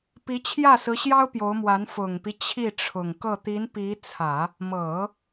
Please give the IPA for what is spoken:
p i˧˥ t͡ɕʰ j ä˥˩ s ɹ̩˧˥ ɕ j ɑ˥ ʊ̯ p j o˧˥ ʊ̯ m w a˧˥ n f ʊ˨˩ ŋ p i˦ t͡ɕʰ i˥˩ ʈ͡ʂʰ ʊ˨˩ ŋ k ɤ˥˩ t̪ i˧˥ n p i˧˥ t͡sʰ ä˨˩˦ | m ɤ˨˩˦

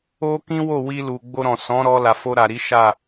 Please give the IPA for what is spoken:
o˦ k ĩ˦ w o˦˨ w i˧ l u˨ ɡ͡b o˧ ɾ ɔ̃˨ s ɔ̃˨˦ ɾ ɔ˧ l a˨ f o˧ ɾ a˨ ɾ i˨˦ ʃ a˦˨

